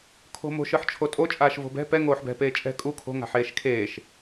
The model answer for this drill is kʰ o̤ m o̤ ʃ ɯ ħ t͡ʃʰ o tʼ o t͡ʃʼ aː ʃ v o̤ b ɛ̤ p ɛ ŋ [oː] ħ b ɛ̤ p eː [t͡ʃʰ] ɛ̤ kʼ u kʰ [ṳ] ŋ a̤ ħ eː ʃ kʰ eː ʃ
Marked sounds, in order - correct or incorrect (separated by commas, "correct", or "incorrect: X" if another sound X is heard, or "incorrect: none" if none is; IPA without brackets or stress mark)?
correct, incorrect: t͡ʃʼ, incorrect: o̤